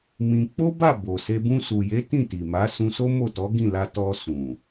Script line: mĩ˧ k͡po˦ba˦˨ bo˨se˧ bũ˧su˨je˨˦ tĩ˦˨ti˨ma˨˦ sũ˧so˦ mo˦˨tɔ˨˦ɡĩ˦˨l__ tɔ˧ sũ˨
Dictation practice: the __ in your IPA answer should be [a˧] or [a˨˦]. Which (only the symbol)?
a˧